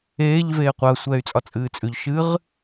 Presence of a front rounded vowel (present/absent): present